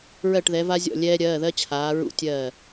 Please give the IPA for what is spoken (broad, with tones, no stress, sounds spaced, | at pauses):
ɹ ɜ˧˩ ʈ ð ɛ˩˧ v a˧ zʲ ɔ̰˧˩ lʲ ɛː˧ ɾʲ ɜː˩˧˩ ð ɜ˧ t͡ɕʰ aː˩˧ ɹ ṵ˧˩ tʲ ɜː˧˩